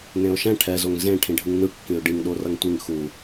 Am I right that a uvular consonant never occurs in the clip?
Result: yes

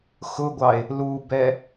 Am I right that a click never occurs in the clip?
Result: yes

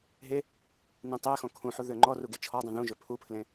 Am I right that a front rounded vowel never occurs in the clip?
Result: no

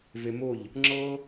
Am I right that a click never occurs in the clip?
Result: no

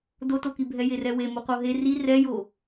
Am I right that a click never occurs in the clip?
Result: yes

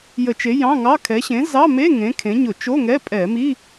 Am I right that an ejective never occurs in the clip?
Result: no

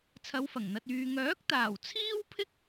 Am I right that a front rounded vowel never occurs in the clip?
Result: no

